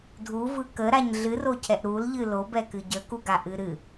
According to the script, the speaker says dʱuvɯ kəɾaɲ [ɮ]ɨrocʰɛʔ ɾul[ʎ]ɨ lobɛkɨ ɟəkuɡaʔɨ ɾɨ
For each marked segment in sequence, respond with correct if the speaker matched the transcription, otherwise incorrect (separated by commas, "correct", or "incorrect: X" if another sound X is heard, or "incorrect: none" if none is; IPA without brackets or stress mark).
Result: correct, correct